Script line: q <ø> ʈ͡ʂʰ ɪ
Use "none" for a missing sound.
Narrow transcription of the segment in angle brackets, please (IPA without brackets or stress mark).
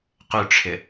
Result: ø